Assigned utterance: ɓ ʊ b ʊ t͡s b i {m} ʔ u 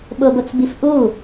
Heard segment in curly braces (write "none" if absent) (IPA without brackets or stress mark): f